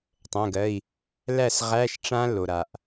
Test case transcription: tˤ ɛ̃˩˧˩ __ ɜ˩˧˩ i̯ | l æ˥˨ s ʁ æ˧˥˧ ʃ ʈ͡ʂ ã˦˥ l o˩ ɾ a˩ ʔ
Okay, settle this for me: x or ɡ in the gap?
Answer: ɡ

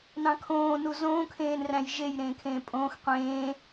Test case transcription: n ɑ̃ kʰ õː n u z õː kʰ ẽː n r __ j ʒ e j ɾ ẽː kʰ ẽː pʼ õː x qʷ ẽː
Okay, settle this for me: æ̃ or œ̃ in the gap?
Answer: æ̃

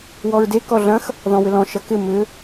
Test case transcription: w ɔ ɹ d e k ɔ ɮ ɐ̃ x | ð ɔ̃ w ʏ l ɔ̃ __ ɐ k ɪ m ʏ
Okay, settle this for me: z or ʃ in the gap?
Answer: ʃ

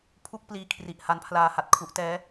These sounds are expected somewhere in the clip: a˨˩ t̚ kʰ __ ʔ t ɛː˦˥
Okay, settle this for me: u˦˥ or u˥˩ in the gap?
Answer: u˦˥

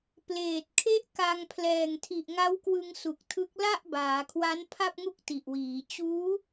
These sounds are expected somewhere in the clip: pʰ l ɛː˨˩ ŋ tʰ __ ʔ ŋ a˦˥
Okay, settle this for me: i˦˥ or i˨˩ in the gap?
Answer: i˨˩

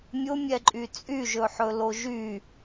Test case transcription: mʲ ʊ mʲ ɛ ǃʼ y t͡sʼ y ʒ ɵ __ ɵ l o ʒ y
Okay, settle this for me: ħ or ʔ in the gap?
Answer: ħ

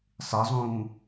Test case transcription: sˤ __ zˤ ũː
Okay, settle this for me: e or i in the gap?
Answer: e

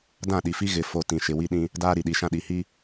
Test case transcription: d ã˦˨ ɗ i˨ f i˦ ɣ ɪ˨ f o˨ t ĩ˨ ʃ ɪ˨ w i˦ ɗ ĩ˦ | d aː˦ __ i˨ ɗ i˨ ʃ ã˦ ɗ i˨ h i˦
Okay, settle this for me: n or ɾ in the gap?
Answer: ɾ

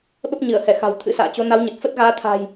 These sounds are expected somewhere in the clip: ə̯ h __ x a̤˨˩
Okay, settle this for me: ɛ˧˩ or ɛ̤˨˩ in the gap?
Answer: ɛ˧˩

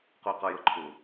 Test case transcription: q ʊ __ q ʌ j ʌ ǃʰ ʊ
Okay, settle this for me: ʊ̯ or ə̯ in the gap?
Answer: ə̯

